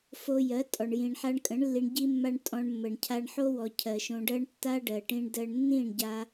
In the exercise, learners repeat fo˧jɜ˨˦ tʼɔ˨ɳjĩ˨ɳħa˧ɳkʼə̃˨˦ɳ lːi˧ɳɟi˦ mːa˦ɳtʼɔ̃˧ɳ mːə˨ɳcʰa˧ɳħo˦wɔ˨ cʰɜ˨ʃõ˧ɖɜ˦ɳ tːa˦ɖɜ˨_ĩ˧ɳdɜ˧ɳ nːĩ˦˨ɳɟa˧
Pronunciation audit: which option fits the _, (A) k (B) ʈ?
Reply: B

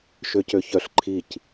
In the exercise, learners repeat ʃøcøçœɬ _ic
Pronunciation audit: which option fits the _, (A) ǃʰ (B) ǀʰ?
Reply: A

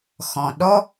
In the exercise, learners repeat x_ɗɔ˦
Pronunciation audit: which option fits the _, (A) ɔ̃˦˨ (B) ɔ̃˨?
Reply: B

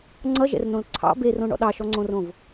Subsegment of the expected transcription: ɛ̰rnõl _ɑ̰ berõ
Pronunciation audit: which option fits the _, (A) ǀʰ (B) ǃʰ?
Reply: A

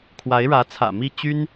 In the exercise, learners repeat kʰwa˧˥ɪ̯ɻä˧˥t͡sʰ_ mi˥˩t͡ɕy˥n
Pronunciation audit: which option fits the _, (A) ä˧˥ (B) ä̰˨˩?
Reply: B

